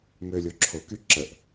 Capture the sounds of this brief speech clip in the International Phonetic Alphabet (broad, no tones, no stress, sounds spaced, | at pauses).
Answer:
m ø lʲ o ǁʰ o k y ǁ ə ʔ